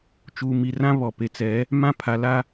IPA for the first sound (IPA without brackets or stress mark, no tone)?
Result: t͡ʃ